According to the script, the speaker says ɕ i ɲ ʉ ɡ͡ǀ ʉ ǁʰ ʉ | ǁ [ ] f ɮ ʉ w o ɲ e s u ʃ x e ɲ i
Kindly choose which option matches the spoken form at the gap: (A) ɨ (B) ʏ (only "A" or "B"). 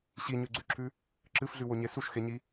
A